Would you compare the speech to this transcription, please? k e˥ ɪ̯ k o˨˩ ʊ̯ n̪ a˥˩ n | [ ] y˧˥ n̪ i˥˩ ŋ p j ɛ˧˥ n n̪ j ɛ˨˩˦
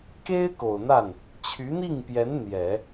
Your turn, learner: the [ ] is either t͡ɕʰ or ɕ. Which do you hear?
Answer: t͡ɕʰ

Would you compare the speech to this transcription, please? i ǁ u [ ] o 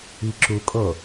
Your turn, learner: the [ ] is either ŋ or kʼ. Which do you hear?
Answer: kʼ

